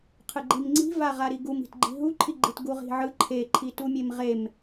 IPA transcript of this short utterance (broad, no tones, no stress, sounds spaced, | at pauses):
qʰ ɯ ɡ͡ǃ i m ŋ͡ǀ i̤ v a ʁ a ɾ i ɡ u m i̤ t ɡ͡ǃ i̤ ɦ u ǃʰ i ɡ͡ǃ i t ɡ u ʁ i̤ ʕ ɯ ǃʰ e ǃʰ i t u mʲ e m ʁ e m